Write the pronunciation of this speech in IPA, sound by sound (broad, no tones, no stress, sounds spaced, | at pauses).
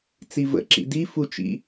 t͡s i v ə̰ ǁ ḭ d i f u t͡ʃ ḭ